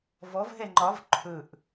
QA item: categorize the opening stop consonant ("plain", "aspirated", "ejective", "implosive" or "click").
click